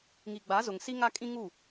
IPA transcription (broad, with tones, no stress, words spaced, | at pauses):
ŋi˨ɡ͡ba˨˦zʊ˨ŋ si˦ŋa˦ kʼĩ˦ŋu˦˨